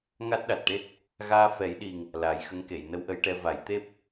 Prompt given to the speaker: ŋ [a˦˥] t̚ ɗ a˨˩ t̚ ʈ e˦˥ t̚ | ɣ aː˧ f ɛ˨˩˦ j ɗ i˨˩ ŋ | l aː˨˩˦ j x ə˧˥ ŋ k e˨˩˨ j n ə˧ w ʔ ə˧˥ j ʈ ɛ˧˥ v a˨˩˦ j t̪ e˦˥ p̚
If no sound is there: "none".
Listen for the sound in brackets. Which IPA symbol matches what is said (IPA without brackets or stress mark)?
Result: a˦˥